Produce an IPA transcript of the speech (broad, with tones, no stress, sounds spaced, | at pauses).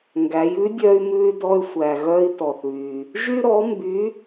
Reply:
ŋ ɡ æ˩˧ j ʉ˧˥ dʲ œ˧ y̯ m ʉ˧ y̯ d ɔ˧ y̯ sʷ æ˩ ɣ œ˧ i̯ t ɔ˩ θ β y˩ | ʒ y˥ ɾ ɔ˧˥ m b y˧˥